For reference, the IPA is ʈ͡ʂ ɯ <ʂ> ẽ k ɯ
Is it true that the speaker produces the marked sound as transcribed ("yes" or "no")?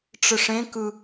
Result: yes